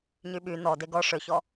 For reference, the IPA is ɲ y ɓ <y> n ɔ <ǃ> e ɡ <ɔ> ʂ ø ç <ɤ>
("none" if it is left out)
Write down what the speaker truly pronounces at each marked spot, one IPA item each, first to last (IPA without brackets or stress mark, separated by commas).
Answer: y, d, ɔ, ɔ